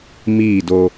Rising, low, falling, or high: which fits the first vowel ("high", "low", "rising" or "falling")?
falling